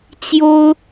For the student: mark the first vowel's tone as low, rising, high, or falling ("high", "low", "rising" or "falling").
high